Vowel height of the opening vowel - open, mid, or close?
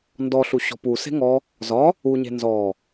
mid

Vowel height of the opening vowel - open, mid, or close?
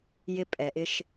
close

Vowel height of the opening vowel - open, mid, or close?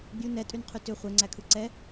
close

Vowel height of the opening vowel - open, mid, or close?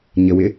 mid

